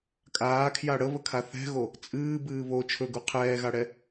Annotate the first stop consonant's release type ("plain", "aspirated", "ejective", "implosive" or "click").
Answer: ejective